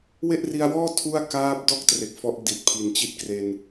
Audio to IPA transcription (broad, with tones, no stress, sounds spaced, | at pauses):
w e˥˩ ʔ r i˧ a̯ w ɔː˥˩ tʰ u˥˩ a̯ k aː˦˥ p̚ d ɔː˥˩ k̚ t r e˨˩ k̚ f ɔ˦˥ ʔ d i˨˩ t̚ pʰ i˨˩ n t͡ɕ i˥˩ t̚ k r e˧ n